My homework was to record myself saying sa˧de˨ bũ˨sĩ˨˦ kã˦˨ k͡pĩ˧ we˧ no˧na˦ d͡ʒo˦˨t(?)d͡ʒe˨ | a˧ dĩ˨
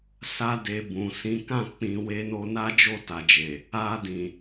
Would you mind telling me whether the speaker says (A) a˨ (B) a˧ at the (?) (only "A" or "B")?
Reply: A